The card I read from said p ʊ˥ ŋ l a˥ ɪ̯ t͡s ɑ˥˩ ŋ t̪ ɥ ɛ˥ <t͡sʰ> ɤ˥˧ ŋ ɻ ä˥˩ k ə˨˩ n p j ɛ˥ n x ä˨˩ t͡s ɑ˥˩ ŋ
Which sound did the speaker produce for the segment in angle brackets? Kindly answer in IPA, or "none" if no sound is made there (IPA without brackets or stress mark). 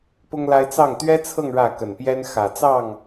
t͡sʰ